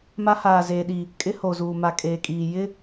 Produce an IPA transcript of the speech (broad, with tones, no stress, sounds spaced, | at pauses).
m a˦ h aː˨ z eː˨ ɗ i˨ | kʼ ɪ˦ h o˨ z uː˨ m a˨ kʼ eː˨ kʼ iː˨ j ɪ˦